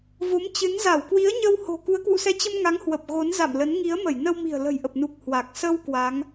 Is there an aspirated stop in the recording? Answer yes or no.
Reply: no